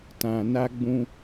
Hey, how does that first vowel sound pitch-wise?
low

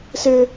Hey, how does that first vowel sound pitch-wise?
high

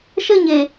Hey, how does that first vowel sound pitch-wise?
falling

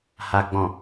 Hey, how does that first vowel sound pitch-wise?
low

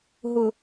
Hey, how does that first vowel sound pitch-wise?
low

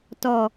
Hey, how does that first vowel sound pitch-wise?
low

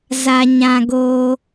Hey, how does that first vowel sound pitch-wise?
low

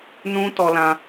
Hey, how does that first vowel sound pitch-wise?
high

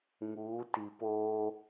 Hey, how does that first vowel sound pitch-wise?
rising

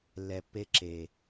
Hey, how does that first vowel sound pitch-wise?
low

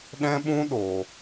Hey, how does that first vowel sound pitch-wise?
high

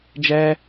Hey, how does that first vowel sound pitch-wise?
high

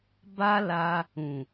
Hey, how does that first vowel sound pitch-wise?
high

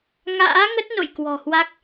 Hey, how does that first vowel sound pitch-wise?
rising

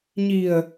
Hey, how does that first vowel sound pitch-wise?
low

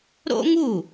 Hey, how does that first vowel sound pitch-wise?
high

